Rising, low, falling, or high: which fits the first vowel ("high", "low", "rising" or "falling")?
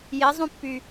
rising